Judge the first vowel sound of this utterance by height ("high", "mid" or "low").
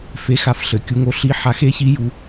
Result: mid